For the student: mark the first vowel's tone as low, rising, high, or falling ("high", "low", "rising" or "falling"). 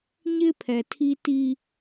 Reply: high